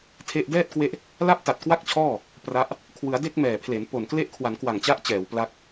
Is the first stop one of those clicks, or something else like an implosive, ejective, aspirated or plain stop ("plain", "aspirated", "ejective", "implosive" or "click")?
aspirated